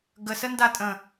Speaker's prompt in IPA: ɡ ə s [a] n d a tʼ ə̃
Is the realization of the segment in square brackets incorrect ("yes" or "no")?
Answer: yes